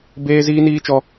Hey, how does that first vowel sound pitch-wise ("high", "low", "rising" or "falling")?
high